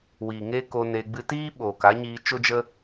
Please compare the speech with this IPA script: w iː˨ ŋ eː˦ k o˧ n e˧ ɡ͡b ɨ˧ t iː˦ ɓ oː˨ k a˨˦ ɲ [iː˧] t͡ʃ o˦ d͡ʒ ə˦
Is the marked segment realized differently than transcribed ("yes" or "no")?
no